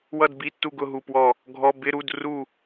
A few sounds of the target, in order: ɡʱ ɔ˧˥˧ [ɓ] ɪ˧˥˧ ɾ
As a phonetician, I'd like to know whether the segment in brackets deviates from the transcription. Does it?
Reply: yes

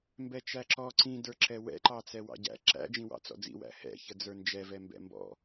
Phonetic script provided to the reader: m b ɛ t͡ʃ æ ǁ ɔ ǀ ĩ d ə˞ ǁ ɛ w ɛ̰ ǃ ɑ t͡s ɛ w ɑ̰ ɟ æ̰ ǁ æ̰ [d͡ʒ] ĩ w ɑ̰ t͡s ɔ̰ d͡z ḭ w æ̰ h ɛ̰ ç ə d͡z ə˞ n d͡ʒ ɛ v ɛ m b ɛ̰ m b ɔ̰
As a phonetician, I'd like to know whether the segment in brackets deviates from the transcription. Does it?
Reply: no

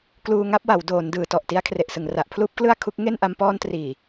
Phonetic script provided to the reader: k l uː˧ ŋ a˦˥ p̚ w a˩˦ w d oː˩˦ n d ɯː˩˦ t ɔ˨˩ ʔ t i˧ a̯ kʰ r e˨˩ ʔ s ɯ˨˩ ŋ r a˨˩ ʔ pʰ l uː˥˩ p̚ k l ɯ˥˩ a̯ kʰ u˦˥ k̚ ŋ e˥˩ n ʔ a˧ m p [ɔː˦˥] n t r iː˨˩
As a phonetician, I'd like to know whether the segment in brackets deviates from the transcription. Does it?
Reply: yes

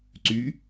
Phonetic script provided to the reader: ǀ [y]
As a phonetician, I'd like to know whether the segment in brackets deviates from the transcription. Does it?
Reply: no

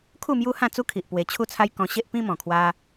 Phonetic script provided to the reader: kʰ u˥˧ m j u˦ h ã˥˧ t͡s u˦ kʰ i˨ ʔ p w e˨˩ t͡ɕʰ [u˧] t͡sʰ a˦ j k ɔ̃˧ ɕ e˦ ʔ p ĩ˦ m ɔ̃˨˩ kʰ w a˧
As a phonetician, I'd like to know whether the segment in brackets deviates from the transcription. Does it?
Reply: yes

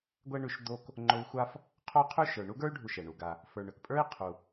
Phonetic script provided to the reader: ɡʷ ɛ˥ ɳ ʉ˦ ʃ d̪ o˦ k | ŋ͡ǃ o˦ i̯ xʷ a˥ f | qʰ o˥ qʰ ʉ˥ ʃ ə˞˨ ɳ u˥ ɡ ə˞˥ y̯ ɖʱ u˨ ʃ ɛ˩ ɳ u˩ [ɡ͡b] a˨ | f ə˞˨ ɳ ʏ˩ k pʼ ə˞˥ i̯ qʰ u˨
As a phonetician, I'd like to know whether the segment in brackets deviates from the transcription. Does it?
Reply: yes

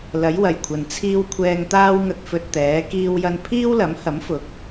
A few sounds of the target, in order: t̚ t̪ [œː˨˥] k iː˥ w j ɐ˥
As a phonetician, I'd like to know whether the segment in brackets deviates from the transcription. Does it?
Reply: yes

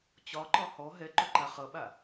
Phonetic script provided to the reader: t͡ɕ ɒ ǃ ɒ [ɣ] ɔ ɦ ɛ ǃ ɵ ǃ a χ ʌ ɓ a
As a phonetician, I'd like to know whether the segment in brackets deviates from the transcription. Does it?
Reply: yes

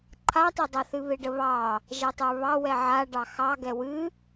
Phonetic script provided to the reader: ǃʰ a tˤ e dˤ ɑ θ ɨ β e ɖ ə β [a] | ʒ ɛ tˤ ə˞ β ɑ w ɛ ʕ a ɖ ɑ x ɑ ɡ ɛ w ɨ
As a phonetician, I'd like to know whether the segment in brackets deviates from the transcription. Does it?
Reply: yes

